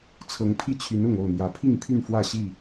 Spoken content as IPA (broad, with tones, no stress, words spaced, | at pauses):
t͡sʰɤ˨˦ŋpʰi˥˨t͡ɕʰy˨˦n ʊ˥˨ŋo˥˨ʊ̯n̪jä˨˦ pʰi˥˨ŋpʰy˥˨nfwä˥˨ ɕi˥˨